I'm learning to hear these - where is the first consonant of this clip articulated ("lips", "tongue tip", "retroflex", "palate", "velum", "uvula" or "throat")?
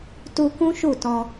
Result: tongue tip